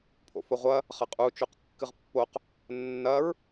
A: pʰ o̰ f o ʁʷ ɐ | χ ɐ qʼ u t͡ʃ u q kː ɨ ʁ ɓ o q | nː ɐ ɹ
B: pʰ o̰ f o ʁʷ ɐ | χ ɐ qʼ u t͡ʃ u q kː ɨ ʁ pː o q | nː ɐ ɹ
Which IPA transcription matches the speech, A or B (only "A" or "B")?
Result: B